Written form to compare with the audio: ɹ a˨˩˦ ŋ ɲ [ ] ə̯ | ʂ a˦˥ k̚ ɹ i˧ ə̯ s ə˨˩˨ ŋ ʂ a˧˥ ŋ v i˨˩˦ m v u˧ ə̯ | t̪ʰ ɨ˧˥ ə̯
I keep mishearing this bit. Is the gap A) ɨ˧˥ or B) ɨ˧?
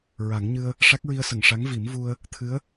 B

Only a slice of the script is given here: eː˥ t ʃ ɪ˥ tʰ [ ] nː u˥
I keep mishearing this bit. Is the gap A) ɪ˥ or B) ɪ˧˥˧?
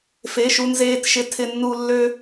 A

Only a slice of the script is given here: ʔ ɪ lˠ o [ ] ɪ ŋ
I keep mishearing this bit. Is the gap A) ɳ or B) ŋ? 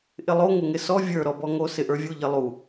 B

